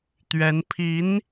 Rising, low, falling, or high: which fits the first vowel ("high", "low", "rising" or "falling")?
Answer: rising